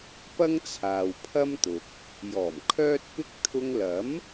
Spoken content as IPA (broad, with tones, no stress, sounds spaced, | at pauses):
p ɐ˥ ŋ t͡sʰ aː˨ w pʰ ɐ˥ m t̪ ʊ˨ k̚ | j ɔː˨˩ m kʰ œː˥ t̚ p ɪ˥ k̚ t̪ʰ ʊ˧ ŋ l ɐ˨˥ m